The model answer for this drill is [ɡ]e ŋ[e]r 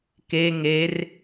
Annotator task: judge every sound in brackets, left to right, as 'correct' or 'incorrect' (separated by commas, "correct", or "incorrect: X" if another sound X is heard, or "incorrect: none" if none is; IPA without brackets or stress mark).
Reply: incorrect: k, correct